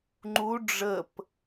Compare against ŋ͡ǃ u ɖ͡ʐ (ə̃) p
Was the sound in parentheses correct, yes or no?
no